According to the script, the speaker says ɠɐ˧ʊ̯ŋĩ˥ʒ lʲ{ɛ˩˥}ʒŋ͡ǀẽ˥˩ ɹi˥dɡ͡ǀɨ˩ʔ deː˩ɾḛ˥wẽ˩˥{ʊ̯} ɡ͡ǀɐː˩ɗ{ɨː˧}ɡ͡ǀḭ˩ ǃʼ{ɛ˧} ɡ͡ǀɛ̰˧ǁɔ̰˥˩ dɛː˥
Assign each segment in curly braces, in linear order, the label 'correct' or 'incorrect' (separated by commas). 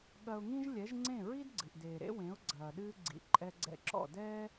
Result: correct, correct, correct, correct